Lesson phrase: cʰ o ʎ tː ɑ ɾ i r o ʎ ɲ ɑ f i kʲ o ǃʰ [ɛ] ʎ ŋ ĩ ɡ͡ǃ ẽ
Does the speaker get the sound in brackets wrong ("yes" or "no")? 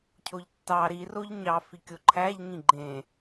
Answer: yes